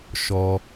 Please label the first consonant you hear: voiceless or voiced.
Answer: voiceless